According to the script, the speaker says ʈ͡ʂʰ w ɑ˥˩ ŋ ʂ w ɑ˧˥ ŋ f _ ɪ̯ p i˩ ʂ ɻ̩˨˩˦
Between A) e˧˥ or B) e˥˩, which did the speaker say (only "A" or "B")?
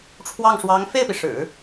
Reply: B